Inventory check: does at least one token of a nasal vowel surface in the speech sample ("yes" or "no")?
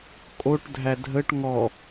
no